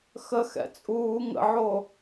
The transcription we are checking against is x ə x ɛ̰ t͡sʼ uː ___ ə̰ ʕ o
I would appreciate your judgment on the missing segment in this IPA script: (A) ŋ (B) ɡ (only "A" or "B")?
A